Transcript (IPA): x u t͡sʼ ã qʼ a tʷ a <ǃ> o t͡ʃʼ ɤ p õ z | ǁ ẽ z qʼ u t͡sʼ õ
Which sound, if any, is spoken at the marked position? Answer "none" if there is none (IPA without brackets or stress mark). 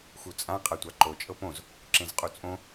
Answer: ǃ